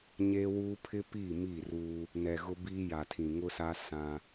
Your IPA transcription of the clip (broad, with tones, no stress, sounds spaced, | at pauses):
ɲ eː˦ w uː˦ pʰ ɪ˦ p iː˦˨ m iː˦˨ r uː˦ | n ɛ˨ ɣ ʊ˦ b iː˦ j a˨ tʰ ĩ˨ ŋ ʊ˦ s a˦ s ã˦